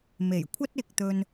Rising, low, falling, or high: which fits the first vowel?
low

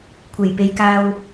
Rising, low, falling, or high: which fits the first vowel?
low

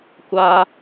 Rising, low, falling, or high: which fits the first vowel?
high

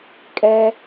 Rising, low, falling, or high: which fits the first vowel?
high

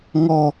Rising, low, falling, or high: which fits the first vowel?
high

